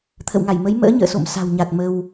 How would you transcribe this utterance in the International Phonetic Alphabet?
t̪ʰ ə̰˧˨ w ŋ a˧˩ j m ə˨˦ j m ə̰ː˧˥ ɲ ə̰ː˧˨ s o̰˧˨ m s a̤˨˩ w ɲ a˨˩ t̚ m ə˧ w

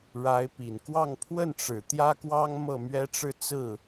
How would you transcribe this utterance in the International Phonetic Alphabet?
ɻ a˧˥ ɪ̯ p i˨˩ n k w ɑ˥˧ ŋ pʰ w ə˥˩ n ʈ͡ʂ ɻ̩˨˩ t̪ j ä˥ k w ɑ˥ ŋ m ɤ˥˩ m ɥ ɛ˥ ʈ͡ʂ ɻ̩˥˧ t͡s ɹ̩˥˩

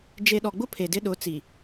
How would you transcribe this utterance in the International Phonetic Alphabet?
d͡ʒ e˨ ɗ ɔ˨ ɡ͡b ʊ˦ pʰ e˨ d ɪ˦ ɗ ʊ˨˦ t͡s i˨

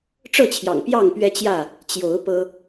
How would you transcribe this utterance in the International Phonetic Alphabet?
ʈ͡ʂ ɤ˥˨ t͡ɕʰ j ɑ̰˨˩ ŋ p j ɑ˥˨ ŋ p ɥ ɛ˦ t͡ɕ j ä˥˨ | t͡ɕ j o˨˦ ʊ̯ p ɤ˦

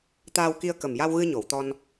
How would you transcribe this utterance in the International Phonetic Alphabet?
t̪ aː˧ w k i˧ ə̯ k ə˨˩ m j a˧ w ɣ ɨ˧ ɲ o˨˩˨ w t̪ ɔ˧ n

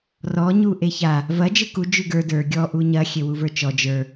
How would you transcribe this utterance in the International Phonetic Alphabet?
r ɔ ɲ u ʔ e ç a | v ɐ d͡ʒ ɯ k u d͡ʒ ʉ ɡ ə˞ d ə˞ ɡʲ ɔ ʔ u ɲ ɐ xʲ e w u v ə˞ t͡ʃ ɔ d͡ʒ ə˞

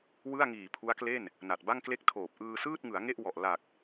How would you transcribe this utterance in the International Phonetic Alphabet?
w ɯ˥˩ a̯ ŋ iː˨˩ pʰ u˦˥ a̯ k l e˥˩ n | n a˨˩ t̚ b a˥˩ ŋ k l e˥˩ k̚ tʰ oː˨˩ p̚ ʔ ɯː˧ s ɯː˥˩ t̚ ŋ ɯ˩˦ a̯ ŋ e˥˩ ʔ w ɔ˨˩ ʔ l a˨˩ k̚

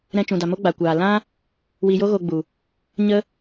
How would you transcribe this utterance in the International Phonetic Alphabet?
ɾ ɛ̃˧ t͡ʃ ũ˨ d a˨ m o˦ ɡ͡b a˨ kʷ aː˨ l ã˦ | w i˧ j o˦ ɣ o˧ ɡ͡b u˨ | ɲ ə˦

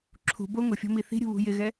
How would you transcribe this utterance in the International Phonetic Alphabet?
ǁʰ ṳ b o ŋ ʊ fʲ ɔ̤ m i θ i̤ ɾʲ ṳ β ṳ j ɪ ɣ ɛ

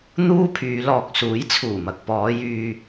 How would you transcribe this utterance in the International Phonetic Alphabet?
n̪ uː˥ pʰ yː˨˧ l ɔː˨ k̚ s uː˨˥ j t͡sʰ uː˨˩ m ɐ˨ k̚ p ɔː˨˧ j yː˧

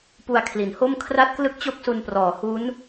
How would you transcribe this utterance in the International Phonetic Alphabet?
p u˧ a̯ kʰ l i˩˦ n h o˥˩ m kʰ r a˥˩ t̚ k l ɯ˥˩ k̚ t͡ɕ o˥˩ k̚ s u˧ n p r ɔː˩˦ h u˦˥ n

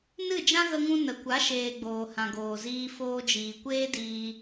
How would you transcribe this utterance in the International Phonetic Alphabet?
n ɨ˦˨ d͡ʒ ã˦ ɣ ə˧ ŋ ũ˧ n ə˨ kʷ a˨˦ ʃ eː˨ ɡ͡b oː˨ h ã˨ ɡ oː˨ z iː˧ f oː˧ d͡ʒ iː˨ kʷ eː˦ d iː˦

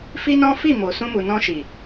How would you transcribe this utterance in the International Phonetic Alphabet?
f i˦ n ɔ̃˦ f i˦˨ m o˨ s ũ˧ m u˨ n ɔ̃˧ ʃ i˨

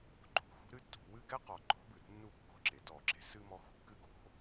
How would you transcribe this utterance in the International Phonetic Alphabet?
ǃ o̤˩ x ṳ˦ ɾ ɨ˦ tː ṳ˧˩˧ w ɨ˦ ɡ ɛ˦ q ɔ˩ ǃ ɔ̤˨˥ b ɨ˩ ɾ ṳ˦ nː u˥˩ kː ɔ̤˥˩ ǁ e˩ t ɔ˧˩˧ ǁ e̤˨˥ s ɨ˦ m ɔ˨˥ x ṳ˥˩ kː ɨ˥˩ ɡ o̤˨˥

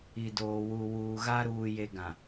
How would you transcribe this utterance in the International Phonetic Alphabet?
i˨ d oː˨ w u˨ w uː˨ ɣ a˦ ɾ uː˨ j e˨ ɡ ã˨

